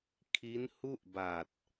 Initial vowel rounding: unrounded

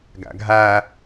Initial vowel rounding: unrounded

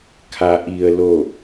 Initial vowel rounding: unrounded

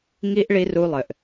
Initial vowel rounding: unrounded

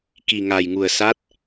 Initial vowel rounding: unrounded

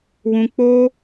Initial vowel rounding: rounded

